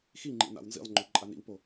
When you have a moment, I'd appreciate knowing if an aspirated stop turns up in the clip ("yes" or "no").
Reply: no